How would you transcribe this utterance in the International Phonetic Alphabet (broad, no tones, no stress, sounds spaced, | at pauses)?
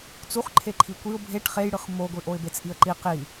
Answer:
t͡s u χ ǃʰ e ǃʰ i kʷ i ʊ̯ bʱ e ʈ χ e j ɽ ɯ χ m o ɡʷ i ʔ o ɪ̯ b e t͡s ʔ i ə̯ ǃ i q i